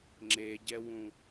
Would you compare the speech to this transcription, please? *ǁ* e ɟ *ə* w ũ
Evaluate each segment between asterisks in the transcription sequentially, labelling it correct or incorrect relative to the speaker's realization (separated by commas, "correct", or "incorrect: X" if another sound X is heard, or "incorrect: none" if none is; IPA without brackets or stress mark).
incorrect: ŋ͡ǁ, incorrect: ɛ